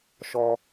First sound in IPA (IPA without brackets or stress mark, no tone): ʃ